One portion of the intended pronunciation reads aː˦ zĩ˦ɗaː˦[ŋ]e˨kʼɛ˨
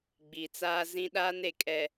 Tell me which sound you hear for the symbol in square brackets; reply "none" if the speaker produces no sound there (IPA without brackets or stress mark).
n